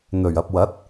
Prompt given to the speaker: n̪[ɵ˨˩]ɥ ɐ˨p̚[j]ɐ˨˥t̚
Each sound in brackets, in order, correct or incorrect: correct, incorrect: w

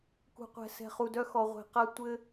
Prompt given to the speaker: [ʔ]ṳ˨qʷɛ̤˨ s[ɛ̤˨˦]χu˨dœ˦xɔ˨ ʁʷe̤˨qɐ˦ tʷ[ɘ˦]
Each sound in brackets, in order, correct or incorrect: incorrect: k, incorrect: ɛ̤˨, correct

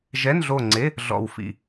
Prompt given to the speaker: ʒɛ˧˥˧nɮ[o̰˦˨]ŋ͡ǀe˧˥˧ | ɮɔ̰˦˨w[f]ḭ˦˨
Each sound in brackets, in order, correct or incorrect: incorrect: o˦˨, correct

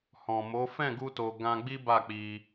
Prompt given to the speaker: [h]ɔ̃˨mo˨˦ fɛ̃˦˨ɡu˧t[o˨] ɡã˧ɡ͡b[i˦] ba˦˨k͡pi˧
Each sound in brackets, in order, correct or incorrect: correct, correct, correct

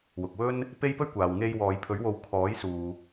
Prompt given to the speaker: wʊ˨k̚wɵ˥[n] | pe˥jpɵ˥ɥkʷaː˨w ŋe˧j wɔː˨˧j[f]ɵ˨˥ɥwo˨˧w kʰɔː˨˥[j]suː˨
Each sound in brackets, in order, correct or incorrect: correct, incorrect: pʰ, correct

